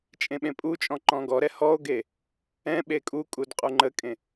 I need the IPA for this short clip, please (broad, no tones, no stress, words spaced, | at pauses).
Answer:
t͡ʃʼẽɓẽpʼut͡ʃʼɔ̃ ǃɔ̃ɡɔɾɛ hɔo̯ɡe | ɛ̃ ɓekʼukʼud qʼuŋ͡ǃəkʼẽ